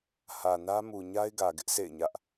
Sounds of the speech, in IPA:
hä˨nä˦ mu˨ ɲa˦ɪ̯ɡä˨ɡɪ˦ʔ sʰḛ˦˨ɪ̯ɲä˦ʔ

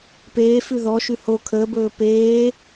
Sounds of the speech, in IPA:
peːfʉ ðɔʃʉ ho kʰəːbɵː peː

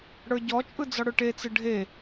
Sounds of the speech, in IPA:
ɽə˞ɟɔt͡ʃʼɯ d͡zɔɽʊʈet͡sɯ ɖʱe

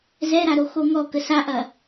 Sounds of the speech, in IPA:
zɛɾaɾo xoŋɔ kəsaʔɐ

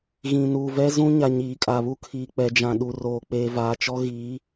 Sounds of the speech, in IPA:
ɣĩ˨nuː˨vɛ˦ zũ˦ɲa˨ ɲiː˨kʼa˨βu˦kʰiː˨ k͡pɛ˨d͡ʒã˨ ɗu˨roː˨ k͡peː˨vaː˨t͡ʃɔ˦ ɣi˨˦

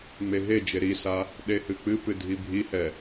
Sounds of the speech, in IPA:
ŋ͡meɦed͡ʒe ɾisa | ɗehɨk͡pɨpɨ dʱibʱihɛ

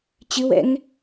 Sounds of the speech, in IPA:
t͡ɕɨwɛ̰ŋ

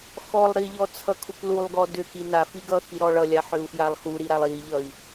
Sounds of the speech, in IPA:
xɔlˠ ɾiʎɔ t͡sʰʌkʰuklulˠɡɔ dʏki nafi ɡʌxi ɾɔɭʌlʲa ħʏu̯fjalˠxuɾi ɾalˠiʎʌi̯

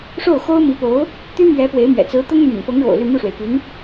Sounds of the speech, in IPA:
ʂo˥˩ʊ̯ xo˥ʊ̯mi˧˥po˧˥ʊ̯ | t̪y˥mɥɛ˧˥ pwe˧˥ɪ̯mɥɛ̰˨˩ t͡sɹ̩˧˥t̪ʊ˥ŋ my̰˨˩npɤ˧˥ŋɻo̰˨˩ʊ̯ ly˥˧ mu˥˩ʂwe˩ɪ̯py˧˥n

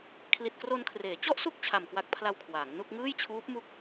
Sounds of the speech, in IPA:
kʰli˨˩t̚kro˧nkʰreː˩˦ t͡ɕɔ˥˩ʔsu˥˩k̚ t͡ɕʰa˨˩mkwa˦˥k̚pʰla˧w kʰwaː˩˦ŋnu˥˩k̚ ŋɯː˥˩jt͡ɕʰuː˦˥p̚ mu˥˩k̚

